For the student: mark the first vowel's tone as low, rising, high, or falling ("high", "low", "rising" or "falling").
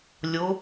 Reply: rising